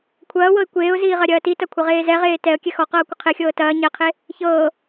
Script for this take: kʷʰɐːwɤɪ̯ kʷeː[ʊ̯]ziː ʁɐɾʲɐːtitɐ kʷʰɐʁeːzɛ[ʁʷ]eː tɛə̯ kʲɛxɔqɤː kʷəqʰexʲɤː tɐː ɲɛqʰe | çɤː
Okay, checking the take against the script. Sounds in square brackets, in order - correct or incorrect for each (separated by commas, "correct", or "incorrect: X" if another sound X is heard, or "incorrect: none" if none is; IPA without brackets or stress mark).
correct, incorrect: ʁ